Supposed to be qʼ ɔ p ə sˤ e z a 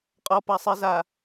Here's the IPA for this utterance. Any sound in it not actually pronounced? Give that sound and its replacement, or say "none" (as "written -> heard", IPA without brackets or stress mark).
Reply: ə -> a